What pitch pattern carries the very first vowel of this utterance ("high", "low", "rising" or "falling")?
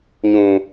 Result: low